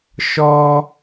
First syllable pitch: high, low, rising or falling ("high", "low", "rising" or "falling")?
high